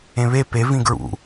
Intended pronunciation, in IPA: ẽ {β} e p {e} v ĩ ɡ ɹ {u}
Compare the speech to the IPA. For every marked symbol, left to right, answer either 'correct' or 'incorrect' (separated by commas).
correct, correct, incorrect